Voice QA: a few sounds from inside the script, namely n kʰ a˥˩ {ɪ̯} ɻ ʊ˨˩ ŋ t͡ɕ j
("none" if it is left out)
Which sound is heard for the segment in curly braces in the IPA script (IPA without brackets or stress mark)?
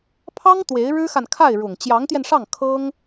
ɪ̯